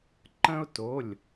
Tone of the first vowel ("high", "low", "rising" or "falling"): high